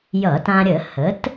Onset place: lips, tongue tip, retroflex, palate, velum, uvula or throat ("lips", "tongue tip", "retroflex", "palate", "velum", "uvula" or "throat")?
palate